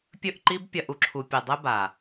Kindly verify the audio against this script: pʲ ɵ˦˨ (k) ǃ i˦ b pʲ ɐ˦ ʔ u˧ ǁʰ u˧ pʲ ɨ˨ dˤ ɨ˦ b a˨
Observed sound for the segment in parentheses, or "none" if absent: ʔ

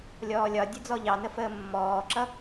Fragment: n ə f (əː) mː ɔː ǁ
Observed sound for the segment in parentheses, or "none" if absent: əː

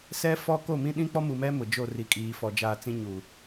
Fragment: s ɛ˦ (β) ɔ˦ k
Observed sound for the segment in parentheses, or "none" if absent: f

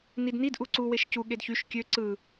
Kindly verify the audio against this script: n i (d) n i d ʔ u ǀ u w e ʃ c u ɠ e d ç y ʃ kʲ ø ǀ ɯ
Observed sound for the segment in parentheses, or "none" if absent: d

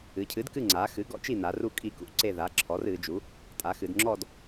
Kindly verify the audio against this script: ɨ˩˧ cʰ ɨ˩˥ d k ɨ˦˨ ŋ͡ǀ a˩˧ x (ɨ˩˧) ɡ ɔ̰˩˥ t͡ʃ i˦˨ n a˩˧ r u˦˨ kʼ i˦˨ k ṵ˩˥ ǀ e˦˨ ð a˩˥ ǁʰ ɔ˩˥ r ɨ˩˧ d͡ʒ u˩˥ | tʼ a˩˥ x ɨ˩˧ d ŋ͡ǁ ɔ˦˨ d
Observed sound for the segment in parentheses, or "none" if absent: ɨ˩˥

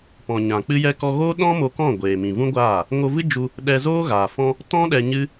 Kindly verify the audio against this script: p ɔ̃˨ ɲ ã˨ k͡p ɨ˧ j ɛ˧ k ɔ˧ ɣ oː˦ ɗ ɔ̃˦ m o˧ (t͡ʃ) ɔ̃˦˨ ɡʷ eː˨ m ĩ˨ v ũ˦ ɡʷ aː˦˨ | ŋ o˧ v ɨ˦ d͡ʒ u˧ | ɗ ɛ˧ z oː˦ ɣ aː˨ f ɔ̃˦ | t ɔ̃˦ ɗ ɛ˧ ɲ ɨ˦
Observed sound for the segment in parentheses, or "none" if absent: k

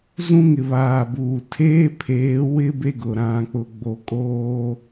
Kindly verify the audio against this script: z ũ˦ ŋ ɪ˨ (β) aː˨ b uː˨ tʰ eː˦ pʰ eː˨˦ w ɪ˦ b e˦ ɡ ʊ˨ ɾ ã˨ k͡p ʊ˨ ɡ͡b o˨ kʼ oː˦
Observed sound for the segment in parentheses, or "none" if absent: β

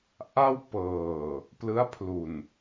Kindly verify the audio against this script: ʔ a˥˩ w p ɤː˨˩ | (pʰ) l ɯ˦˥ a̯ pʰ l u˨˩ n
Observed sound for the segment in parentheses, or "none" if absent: p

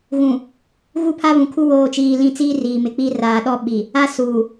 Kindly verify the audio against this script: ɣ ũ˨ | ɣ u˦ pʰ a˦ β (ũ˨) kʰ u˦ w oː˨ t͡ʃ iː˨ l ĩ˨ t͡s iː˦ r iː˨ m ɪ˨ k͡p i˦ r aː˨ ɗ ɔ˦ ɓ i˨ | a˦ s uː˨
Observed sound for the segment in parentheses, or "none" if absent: ũ˨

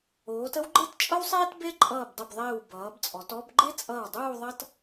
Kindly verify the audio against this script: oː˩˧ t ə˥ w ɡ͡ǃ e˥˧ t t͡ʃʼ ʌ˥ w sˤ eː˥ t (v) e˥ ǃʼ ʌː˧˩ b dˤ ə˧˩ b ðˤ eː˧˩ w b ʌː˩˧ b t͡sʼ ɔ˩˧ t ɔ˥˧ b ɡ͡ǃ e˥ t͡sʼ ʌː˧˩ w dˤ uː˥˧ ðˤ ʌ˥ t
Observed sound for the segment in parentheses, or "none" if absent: b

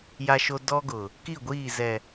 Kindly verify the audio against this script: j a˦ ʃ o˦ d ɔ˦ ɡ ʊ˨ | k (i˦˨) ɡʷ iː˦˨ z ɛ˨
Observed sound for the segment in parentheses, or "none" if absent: i˦˨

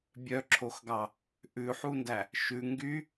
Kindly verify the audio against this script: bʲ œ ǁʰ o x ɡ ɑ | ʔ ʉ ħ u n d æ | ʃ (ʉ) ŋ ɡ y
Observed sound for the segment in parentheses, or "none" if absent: ʉ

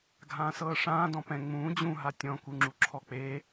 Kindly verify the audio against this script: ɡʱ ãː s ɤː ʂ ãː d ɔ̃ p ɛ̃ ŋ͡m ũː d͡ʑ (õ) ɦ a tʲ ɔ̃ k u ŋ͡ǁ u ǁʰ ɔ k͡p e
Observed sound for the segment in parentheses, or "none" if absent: ũ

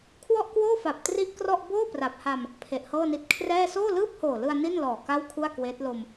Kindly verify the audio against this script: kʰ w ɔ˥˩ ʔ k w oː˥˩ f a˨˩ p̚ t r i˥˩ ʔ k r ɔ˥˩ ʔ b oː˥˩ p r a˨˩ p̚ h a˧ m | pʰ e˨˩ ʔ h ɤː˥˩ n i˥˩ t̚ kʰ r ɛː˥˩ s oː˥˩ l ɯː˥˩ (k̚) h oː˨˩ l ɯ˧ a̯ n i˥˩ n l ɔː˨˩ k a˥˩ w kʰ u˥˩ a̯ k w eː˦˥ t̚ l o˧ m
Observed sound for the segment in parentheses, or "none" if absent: p̚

